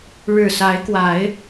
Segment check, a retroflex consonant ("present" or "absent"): present